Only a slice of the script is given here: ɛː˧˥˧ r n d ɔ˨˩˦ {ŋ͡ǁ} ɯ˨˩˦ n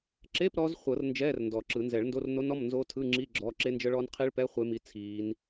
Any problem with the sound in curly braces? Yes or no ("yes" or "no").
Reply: yes